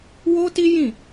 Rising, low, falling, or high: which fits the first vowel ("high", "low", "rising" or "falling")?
high